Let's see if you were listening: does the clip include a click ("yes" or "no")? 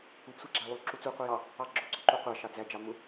yes